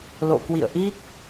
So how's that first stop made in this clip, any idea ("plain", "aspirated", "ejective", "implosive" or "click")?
plain